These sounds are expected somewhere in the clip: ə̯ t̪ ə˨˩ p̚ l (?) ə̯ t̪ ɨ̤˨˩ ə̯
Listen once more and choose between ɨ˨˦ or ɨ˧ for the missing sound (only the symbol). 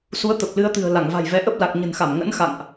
ɨ˨˦